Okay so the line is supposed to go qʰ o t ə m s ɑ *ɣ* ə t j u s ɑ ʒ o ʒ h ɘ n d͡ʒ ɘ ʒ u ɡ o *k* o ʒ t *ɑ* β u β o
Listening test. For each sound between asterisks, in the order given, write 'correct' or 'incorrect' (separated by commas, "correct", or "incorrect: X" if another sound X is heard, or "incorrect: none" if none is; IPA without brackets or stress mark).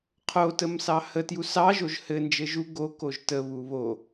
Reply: incorrect: h, correct, incorrect: ə